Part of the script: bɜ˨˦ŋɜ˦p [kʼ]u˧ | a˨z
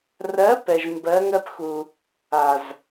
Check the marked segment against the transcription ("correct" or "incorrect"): incorrect